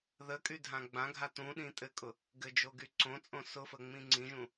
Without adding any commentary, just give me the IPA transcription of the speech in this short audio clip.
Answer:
ðəkʼydʱã ɡ͡bãɡʱa tũɗĩ tʼɘkʼʊ | ɡɘd͡ʒoɡy ǀõt͡sʼõ sʊfəŋ͡mĩ ŋ͡ǀĩʒũ

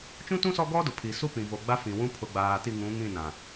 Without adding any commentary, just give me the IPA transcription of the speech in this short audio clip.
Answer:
t͡ʃũ˦tũ˦ sɔ˦ɡɔ˦dʊ˨ pʰi˨su˦pĩ˨ vo˨ɡ͡ba˦fĩ˨wũ˦ pʰʊ˨ɡ͡baː˨ ti˦˨ŋũ˨˦ŋĩ˦˨nã˨

